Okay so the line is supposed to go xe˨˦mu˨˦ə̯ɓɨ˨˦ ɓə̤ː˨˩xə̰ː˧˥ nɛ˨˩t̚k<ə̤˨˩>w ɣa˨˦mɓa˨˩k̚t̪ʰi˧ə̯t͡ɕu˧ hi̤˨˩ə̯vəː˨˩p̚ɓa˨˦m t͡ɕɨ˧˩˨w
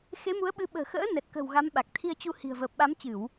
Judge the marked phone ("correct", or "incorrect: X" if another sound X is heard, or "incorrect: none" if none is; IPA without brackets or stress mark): correct